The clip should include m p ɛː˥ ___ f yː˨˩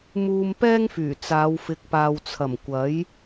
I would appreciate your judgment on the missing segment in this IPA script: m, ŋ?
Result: ŋ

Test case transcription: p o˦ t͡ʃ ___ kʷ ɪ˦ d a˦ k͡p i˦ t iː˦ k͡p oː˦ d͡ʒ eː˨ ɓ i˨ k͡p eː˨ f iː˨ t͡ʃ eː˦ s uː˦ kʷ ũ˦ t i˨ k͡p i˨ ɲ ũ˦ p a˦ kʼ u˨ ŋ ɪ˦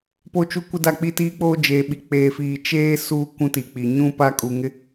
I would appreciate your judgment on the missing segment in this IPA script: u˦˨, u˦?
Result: u˦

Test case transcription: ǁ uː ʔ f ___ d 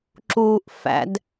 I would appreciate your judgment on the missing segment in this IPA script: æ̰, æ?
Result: æ̰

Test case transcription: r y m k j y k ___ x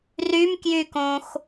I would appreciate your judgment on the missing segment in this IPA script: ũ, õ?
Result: õ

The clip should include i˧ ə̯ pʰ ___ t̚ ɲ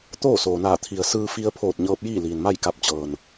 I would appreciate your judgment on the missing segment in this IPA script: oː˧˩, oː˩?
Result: oː˧˩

